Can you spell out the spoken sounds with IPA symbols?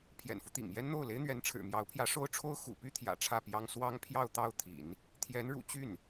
pʰ j ɛ̰˨˩ n f u˦ t̪ ḭ˨˩ ŋ j ɛ˥ n n̪ o˥˩ ʊ̯ l e˥ ɪ̯ n̪ ɥ ɛ˧˥ n ʈ͡ʂʰ ɻ̩˨˩ m j ɑ˧˥ ʊ̯ pʰ j ä˧˥ ʂ o˥ ʊ̯ ʈ͡ʂʰ o˥ ʊ̯ x ṵ˨˩ p y˥ t̪ʰ j ä̰˨˩ ʈ͡ʂʰ ä˥˩ p j ɑ˥ ŋ s w ɑ˥ ŋ pʰ j ɑ˥˧ ʊ̯ t̪ ɑ˥˩ ʊ̯ t̪ʰ ḭ˨˩˦ n | t̪ʰ j ɛ˧˥ n ɻ ṵ˨˩ t͡ɕ y˥˩ n

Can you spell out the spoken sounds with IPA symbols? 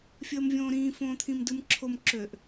fʲ əː m vʲ õː ɾ ĩː f õː t̪ʰ ĩ m d ɯ m ǁʰ o m ǁ ø ʔ

